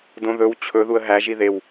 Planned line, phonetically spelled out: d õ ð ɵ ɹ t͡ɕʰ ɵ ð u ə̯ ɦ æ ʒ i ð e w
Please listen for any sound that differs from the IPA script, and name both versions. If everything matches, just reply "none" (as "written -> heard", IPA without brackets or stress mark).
ɹ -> w